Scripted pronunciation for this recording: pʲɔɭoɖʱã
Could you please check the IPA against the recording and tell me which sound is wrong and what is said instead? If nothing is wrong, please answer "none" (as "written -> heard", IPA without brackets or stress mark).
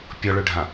o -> ɵ